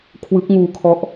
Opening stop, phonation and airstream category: aspirated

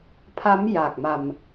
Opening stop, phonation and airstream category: aspirated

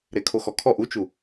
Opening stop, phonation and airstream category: aspirated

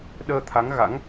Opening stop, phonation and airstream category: implosive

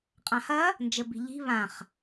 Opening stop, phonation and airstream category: ejective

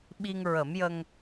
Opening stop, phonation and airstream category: implosive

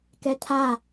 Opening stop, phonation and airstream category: plain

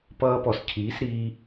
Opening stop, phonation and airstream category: plain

